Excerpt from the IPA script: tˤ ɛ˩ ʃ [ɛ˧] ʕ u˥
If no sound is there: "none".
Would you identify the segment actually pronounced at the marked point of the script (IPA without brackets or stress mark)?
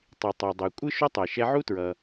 ɛ˧